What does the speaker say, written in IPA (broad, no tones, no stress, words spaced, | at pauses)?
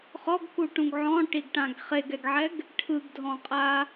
χɔɡkuʈũɡ ʕɔ̃ʈiɡʈãɡ χeɡɛɡʕɛɡ | ʈʰɯɡdʱɔ̃qʼa